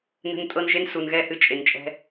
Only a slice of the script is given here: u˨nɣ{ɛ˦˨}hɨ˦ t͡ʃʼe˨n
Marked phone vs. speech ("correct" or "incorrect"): correct